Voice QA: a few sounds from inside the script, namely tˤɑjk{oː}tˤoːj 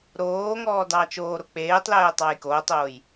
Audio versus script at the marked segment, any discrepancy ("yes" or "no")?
no